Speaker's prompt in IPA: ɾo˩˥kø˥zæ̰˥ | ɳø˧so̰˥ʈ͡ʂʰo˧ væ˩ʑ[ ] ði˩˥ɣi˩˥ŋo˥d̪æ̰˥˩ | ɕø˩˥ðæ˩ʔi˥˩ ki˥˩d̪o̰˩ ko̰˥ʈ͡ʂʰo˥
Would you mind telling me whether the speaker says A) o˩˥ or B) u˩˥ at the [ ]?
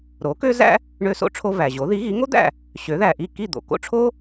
A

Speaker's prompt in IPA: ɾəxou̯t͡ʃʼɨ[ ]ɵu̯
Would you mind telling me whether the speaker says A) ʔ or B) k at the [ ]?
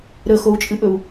A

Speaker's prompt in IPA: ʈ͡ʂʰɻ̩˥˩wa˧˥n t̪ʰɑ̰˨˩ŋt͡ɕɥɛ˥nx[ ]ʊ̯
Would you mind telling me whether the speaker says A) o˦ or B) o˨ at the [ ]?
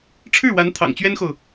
B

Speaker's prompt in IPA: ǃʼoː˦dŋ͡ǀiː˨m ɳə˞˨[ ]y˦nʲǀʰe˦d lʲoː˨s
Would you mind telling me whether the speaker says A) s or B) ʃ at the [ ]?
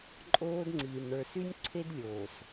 A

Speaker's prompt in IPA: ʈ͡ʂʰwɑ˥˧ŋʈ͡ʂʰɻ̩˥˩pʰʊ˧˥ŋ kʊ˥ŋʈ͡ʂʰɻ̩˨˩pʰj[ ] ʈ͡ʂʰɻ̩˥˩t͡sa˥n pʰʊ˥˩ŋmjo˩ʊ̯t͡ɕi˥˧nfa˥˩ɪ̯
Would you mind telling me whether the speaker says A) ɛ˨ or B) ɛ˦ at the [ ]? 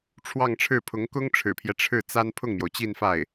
B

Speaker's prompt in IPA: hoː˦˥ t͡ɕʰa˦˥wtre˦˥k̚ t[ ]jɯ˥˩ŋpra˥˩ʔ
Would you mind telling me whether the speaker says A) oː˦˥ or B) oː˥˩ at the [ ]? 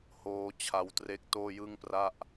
B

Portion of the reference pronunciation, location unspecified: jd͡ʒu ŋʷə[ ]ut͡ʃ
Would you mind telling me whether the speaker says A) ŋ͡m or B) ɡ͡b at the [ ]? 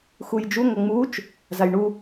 A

